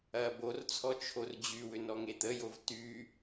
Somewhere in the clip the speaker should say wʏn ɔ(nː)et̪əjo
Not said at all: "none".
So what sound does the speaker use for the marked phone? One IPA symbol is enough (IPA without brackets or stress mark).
ŋ